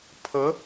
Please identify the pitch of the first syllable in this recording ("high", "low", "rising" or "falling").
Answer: rising